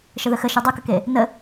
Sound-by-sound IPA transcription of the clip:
ʃ ə ð ə x ə ʃ u dˤ u k ə k e | n ə

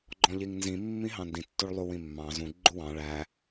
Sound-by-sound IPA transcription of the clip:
ɡ͡ǃ ɔ̃ ʎ i ŋ n z ĩ mː ĩ ɦ ɑ̃ n d ĩ tː u ɭ lˠ u w ĩ mː ɑ̃ z ũ ɡ͡ǃ u w ɑ̃ ɭ æ

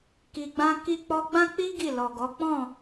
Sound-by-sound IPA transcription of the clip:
k i˧ ɡ͡b ã˦ k i˦ k͡p ɔ˦ ɡ͡b ã˦ k͡p i˦ ɡ i˦˨ l ɔ˨ ɡ ɔ˨˦ k͡p ɔ̃˦˨

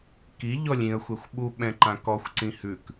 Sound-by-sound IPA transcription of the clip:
k i ʎ ɔ lʲ ĩ ə̯ xʷ ɛ xʷ ɓ u ɓ ɛ̃ ǃ ã k ɔ xʷ ǀ ĩ h ʉ k

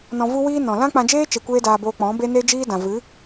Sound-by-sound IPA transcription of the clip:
n ɔ̃˧ v u˦ w iː˦ n ɔ̃˨ l ã˦ k͡p ã˧ d͡ʒ eː˦ t͡ʃ e˧ kʷ eː˦ d aː˧ b oː˧ k͡p ɔ̃˨˦ b e˦ n e˦ d͡ʒ iː˦ d ã˨ v ɨ˨˦

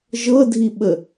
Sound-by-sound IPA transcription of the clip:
ʒ ɤ dʱ i ɓ ə

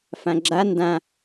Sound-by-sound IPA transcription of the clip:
f ã ɡ͡ǁ a n d ã

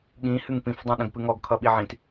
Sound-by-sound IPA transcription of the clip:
ɠ ĩ h ɨ ŋ p ĩ f dˤ ĩ ɗ ə̃ ɡ p ɨ ŋ ɔ ɡ kʰ ʌ ɓ i ʕ ĩ t

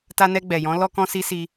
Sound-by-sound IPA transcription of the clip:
t a˧ n ɛ˧ ɡ͡b ɛ˨ j ɔ̃˨˦ l ɔ˧ k ɔ̃˧ s i˧ s i˧

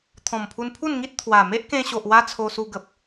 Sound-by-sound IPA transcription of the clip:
t̪ʰ ɔ̃˨˩ m pʰ u˧ n pʰ u˥˧ n ŋ i˦ t̚ t̪ʰ w a˨˩ m e˦ ʔ k ẽ˧ ɕ o˨ ʔ w a˦ t͡sʰ o˧ s u˧ ɡ ə˨ p̚

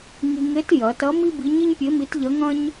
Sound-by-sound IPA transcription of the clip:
ŋ i˧ ŋ e˧˥ t j ɐ˩˧ t ɐ˧˥ m i˥ b i˧˥ ɲ i˥ ɲ pʲ e˧˥ m i˧˥ t ʎ ɐ˧˥ ŋ ɐ̃˥ ɲ

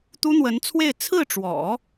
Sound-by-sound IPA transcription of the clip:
t̪ u˥ n̪ w ə˧˥ n t͡sʰ w e˥˧ ɪ̯ t͡sʰ ɹ̩˥˩ ʈ͡ʂ w ɔ̰˨˩˦

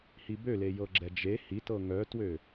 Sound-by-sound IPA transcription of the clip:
h i b ø l e j ɤ ɡ͡ǁ ɛ d͡ʒ e h i t ɤ ŋ œ t w ø

